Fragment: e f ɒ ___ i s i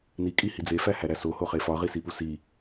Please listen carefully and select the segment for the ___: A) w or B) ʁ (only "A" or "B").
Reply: B